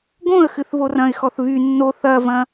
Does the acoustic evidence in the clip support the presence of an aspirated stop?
no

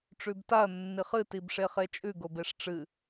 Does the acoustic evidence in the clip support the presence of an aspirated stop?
no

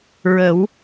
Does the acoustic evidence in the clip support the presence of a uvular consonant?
no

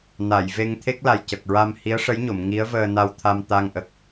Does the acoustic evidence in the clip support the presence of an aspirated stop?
yes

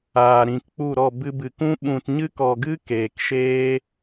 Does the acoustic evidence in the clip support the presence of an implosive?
yes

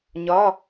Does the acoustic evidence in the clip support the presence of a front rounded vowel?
no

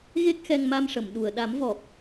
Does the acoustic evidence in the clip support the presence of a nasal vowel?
no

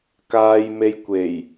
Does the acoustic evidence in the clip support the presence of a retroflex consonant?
no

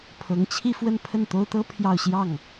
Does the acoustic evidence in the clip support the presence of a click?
no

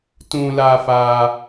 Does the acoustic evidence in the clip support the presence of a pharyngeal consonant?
no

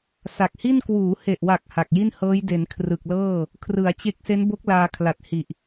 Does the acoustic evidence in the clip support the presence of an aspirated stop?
yes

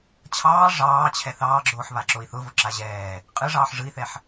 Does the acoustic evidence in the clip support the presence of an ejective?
yes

